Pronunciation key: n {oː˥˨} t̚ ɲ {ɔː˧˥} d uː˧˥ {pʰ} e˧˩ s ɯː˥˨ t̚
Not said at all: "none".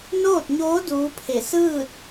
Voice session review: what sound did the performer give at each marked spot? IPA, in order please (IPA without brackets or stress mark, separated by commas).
oː˥˨, oː˧˥, pʰ